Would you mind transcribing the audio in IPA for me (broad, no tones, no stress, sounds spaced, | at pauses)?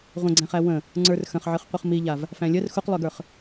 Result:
ʁʷ ə̃ ɡ͡ǀ æ̃ χ æ w ə̃ | ŋ͡ǀ ə˞ r x ə̃ χ ʕ ɨ χ qʷ ɨ χ m i ʎ a v | f æ̃ lʲ ə r x u q lˠ ø ɡ ə˞ χ